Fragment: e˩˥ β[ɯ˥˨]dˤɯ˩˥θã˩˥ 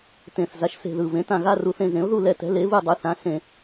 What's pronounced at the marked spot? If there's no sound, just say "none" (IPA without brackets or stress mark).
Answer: ɯ˥˨